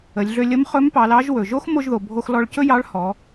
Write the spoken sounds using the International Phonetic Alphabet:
ə˩˧ lʲ ɮ ø˧ lʲ ə˧˥ m χ ɵ˧˥ m p ɑ˩˧ l ɑ˧˥ ʒ w ɵ˩ ʒ o˥ x m o˧ ʒ ð o˩ bʱ o˧ x l ɔ˧ ɭ c ɵ˥ j ɑ˧˥ ɭ h ɔ˩˧

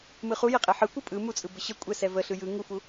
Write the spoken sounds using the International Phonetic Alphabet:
m ɯ χ u j ɛ qʼ ɛ ħ ɯ kʷ ɯ pʼ ɯ m u t͡sʼ ɯ b ə ɕ ə kʷʼ ɛ s ɛ v ə ɬ ɯ j ɯ ŋ u f u

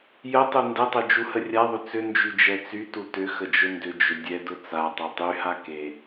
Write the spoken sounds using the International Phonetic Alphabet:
j ə tˤ u n d ɛ tˤ œ d͡ʒ u h ə rʲ a ðˤ ʏ t͡s ʏ n d͡ʒ y d͡ʒ ɛ t͡s y t u t ʏ x ə d͡ʒ ʊ n d ʏ d͡ʒ ʏ dʲ ɛ d ʊ t͡s a tˤ œ tˤ y h a k e

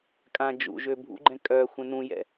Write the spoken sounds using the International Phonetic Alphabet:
kʼ ã d͡ʒ ṵ ʒ ø bʱ ṵ ɡ͡ǃ ɛ̃ kʼ œ xʷ ɛ̃ n ũ j ɛ̰

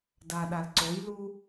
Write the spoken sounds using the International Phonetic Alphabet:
d a ɗ a l ǀ o j l u

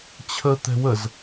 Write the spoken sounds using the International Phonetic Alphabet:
t͡ɕʰ ə t̪ ɛ̤ w ə z

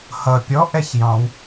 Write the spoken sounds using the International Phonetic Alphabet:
h ʌ pʲ ɔ ʔ ɛ ç j ɑ̃ w

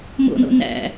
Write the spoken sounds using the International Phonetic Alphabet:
m o̰ n o̰ n æ̰

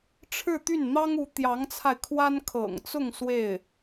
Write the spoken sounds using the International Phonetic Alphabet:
ʈ͡ʂʰ ɻ̩˥˧ t̪ y˥˩ n n̪ ɑ˥ ŋ u˧˥ t̪ j ɑ˧˥ ŋ t͡sʰ a˧ ɪ̯ kʰ w a˥ n kʰ ɤ̰˨˩ ŋ t͡s ʊ˥˧ ŋ s w e˥˩ ɪ̯

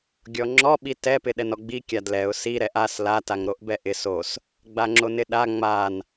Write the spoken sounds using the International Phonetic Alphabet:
ɡʲ ɔ ŋ͡ǁ ɔ ɓ i t ɛ p ɪ ɗ ɛ n ɔ ɡ͡b i kʲ a d l ɛ ʊ̯ s i ɾ ɛ ʔ a s l a t a ŋ ɾ o ʔ b ɛ ʔ ɪ s o s | ɡ͡b a ŋ͡ǁ o n ɪ ɗ a ŋ͡m a n

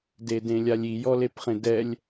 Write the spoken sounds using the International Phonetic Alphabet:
d e d ẽ lʲ a lʲ i j ɔ l e p χ ẽ d ɛ lʲ

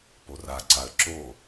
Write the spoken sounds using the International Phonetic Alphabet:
p o r a ǀ a ə̯ ǁ o

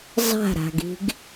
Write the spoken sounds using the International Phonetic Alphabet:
zˤ a̤ ɾ a̤ ɡ i̤ ɡ

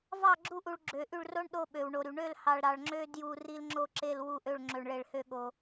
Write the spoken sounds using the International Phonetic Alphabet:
v ɑ˦˨ ɡ͡ǁ u˦˨ ʔ u˨ ɭ ɡ͡ǁ ø˨ ʔ y˦˨ ɭ r o˦ ɳ ɗ o˦ ɓ ø˨ w ɳ o˨ ɾ y˨ ɳ ø˦˨ l h ɑ˨ ɭ ɾ ɑ˨ ɭ ŋ͡ǁ ø˦ d j u˨ r i˦ l ŋ͡ǁ o˦ ǁ e˦˨ l w u˦˨ ʔ ø˦˨ ɭ ŋ͡ǁ ø˨ ɳ ɭ e˨ ɭ h ø˦˨ ɠ o˨

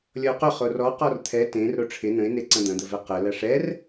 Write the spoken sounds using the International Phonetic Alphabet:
lʲ ɔ ʊ̯ q ʊ χ o r ɔ q ɔ r t̪ʰ ɛ t ẽ r ɾ o ʈ͡ʂʰ ɪ n ə̃ ɪ̯ n e ǀ ɐ̃ d̪ ɐ̃ d̪ ə v ɛ q ə l ɐ ʂ ɛ r

